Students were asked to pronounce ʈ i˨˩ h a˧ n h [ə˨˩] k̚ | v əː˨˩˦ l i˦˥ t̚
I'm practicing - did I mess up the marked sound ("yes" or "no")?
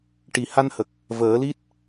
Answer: no